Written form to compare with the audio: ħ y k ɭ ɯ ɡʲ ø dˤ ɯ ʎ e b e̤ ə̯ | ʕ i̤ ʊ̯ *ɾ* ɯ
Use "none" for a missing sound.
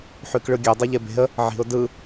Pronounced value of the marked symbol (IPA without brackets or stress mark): d